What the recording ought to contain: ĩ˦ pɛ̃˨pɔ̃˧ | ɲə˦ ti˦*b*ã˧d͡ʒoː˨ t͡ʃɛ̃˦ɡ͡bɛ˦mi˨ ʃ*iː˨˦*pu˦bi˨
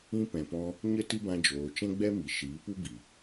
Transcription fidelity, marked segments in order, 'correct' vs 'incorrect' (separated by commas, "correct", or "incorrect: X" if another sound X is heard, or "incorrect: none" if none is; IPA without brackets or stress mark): correct, correct